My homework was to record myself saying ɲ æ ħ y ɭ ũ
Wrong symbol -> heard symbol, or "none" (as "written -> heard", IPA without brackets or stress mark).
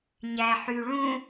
none